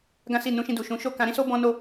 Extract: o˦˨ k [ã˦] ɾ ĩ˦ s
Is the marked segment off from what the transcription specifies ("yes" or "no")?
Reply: yes